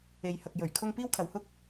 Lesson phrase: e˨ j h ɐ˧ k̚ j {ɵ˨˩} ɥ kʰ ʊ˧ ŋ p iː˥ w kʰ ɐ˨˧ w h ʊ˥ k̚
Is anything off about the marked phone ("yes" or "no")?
no